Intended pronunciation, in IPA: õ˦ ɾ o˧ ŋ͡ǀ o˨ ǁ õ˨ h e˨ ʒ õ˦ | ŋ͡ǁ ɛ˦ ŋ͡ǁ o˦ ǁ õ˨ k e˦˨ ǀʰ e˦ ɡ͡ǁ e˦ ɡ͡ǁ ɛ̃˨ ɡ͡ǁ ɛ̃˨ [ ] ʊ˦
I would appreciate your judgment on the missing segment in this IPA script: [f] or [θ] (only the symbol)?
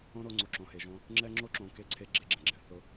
θ